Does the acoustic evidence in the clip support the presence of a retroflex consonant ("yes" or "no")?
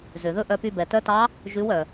no